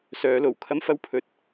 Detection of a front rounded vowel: present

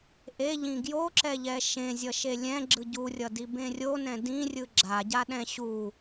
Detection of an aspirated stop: absent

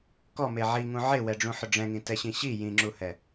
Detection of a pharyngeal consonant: present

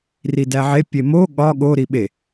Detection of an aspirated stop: absent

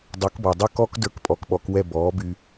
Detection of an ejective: present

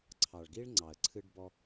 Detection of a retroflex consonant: present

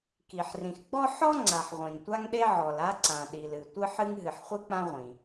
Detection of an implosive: present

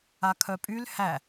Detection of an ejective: present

